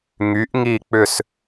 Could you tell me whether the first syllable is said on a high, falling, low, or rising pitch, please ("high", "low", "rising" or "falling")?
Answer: rising